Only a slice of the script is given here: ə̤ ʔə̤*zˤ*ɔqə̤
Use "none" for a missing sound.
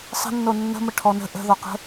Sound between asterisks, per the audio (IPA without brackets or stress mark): ð